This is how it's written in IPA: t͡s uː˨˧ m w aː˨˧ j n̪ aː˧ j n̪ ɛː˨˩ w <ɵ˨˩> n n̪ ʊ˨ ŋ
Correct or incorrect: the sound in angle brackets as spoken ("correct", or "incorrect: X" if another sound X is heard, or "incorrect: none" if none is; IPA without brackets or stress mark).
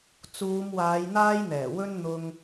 incorrect: ɵ˧